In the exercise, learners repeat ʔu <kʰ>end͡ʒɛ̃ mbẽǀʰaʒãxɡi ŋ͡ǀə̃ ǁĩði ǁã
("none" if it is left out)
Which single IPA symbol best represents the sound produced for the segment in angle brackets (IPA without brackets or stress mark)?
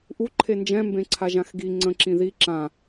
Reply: ǃʰ